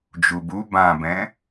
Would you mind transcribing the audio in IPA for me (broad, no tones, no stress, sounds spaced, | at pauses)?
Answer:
d͡ʒ u b u b ã b ɛ̃